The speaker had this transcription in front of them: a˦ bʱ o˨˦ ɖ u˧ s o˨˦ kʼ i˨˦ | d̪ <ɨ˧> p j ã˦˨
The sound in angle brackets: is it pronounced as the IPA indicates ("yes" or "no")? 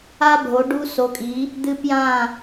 yes